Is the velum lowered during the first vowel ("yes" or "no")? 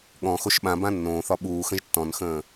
yes